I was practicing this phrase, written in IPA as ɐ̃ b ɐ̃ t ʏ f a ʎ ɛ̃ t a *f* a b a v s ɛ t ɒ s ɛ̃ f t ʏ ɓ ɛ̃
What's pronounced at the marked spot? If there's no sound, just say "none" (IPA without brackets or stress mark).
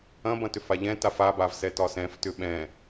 f